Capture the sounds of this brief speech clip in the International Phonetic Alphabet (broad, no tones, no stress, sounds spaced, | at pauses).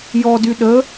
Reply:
j ɔ d y ɗ ə